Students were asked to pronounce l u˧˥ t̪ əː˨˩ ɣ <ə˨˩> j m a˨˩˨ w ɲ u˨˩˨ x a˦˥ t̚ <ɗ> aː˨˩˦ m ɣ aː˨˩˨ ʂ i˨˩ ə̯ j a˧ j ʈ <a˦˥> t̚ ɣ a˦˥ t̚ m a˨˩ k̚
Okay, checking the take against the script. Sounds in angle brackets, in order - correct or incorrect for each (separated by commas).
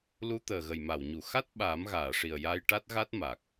correct, incorrect, correct